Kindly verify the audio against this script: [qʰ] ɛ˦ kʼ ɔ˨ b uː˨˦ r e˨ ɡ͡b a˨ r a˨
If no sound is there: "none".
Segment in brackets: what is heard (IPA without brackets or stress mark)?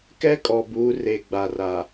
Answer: k